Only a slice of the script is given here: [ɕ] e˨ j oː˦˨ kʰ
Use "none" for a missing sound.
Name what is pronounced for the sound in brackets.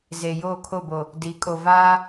z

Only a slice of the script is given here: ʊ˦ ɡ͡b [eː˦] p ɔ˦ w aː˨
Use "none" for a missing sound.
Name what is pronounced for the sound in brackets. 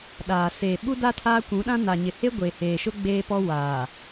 eː˦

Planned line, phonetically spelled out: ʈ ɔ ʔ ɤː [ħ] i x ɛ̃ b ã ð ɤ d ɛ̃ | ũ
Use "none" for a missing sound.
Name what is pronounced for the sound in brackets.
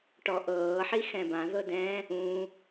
ħ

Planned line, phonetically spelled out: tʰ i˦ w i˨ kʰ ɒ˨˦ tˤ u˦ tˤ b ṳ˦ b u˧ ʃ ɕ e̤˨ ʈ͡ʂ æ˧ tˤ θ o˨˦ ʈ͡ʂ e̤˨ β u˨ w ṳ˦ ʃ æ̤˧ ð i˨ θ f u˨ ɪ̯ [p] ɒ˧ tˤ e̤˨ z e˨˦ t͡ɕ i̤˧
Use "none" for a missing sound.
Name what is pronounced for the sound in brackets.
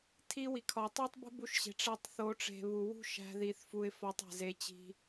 f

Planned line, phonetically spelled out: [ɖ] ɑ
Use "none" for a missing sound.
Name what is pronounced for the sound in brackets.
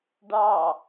ɖ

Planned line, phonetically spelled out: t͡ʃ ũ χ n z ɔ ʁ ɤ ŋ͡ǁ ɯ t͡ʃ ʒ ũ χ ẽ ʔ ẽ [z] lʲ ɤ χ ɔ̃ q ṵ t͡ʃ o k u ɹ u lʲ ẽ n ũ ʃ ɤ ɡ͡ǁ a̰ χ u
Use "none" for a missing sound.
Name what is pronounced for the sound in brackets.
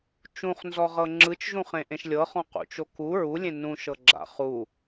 ʃ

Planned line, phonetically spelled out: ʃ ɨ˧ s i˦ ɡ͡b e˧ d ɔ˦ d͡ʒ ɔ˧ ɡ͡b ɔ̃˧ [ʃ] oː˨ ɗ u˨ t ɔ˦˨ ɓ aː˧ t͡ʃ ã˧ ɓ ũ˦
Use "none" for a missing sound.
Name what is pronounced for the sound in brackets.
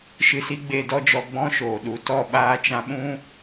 ʃ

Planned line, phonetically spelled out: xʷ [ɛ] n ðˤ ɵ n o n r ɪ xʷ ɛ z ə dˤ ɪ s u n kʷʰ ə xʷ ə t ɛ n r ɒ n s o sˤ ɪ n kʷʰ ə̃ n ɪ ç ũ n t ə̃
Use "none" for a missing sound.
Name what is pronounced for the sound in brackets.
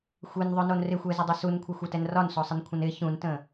e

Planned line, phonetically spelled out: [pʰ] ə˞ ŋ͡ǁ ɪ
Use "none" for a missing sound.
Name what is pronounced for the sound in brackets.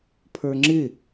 pʰ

